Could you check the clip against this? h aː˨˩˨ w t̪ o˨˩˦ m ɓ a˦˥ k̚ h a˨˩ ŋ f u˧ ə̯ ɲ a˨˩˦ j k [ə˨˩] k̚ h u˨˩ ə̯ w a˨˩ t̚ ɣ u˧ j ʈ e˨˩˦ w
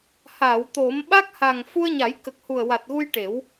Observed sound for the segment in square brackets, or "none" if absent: ə˨˩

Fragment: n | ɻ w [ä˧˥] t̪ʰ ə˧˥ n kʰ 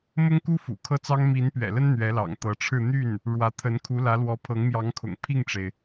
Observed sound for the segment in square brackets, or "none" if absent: ä˧˥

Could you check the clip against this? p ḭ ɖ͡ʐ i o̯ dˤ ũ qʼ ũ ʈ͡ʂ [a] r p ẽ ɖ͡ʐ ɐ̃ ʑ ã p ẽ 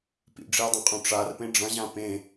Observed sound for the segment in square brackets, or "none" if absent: a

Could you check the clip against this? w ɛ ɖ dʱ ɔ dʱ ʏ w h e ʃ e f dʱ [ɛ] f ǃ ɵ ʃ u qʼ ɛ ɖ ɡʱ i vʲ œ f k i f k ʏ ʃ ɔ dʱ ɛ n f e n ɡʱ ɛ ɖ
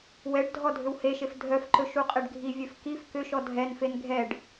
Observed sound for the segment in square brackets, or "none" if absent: œ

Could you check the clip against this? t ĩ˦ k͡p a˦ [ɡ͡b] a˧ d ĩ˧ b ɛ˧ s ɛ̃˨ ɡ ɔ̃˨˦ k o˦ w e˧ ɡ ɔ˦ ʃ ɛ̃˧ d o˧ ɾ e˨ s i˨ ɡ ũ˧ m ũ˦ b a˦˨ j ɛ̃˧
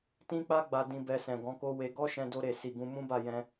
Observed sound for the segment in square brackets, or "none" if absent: ɡ͡b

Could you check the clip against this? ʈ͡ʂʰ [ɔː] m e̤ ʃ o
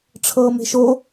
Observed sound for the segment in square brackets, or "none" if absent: ɤː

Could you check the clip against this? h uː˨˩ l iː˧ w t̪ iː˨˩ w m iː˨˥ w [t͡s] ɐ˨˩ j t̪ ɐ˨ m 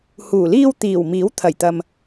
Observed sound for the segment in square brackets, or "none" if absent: t̪ʰ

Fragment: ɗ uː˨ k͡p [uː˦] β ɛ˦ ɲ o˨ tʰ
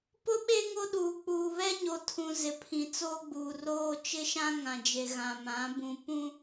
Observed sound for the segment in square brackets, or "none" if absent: uː˨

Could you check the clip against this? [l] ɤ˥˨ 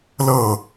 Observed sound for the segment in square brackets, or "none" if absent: l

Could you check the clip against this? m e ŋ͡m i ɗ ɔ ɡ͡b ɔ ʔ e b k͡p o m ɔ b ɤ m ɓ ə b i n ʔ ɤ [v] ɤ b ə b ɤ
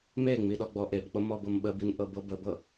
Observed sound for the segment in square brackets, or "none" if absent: b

